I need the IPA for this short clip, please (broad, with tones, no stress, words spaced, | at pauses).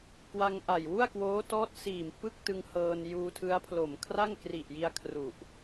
kwa˧ŋʔa˨˩j wu˥˩a̯kwoː˦˥tɔː˦˥t̚ siː˨˩m pɯ˥˩k̚tɯ˧ŋhɤː˧n juː˧tʰɯ˦˥a̯pʰlo˨˩m kʰra˥˩ŋ kri˨˩ʔji˧a̯kʰru˨˩ʔ